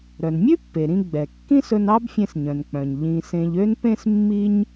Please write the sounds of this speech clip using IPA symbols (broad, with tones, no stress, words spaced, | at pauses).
ɾœ˩nmʲʉ˥pːe˩ɾĩ˧ ɡ͡bɛ˩ kːĩ˥sɵ˧nɑ˥b fʲẽ˧sɲœ̃˩nk͡pœ̃˩ɲ ʎĩ˧ sẽ˧ʎø˥npẽ˥s mːi˥ɲ